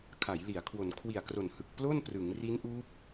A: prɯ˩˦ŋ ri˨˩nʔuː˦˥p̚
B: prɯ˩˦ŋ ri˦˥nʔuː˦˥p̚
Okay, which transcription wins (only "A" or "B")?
B